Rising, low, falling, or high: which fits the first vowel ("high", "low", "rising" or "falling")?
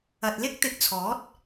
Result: low